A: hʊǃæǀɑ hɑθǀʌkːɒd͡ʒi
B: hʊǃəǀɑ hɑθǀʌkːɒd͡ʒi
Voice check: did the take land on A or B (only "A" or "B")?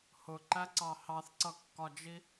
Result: A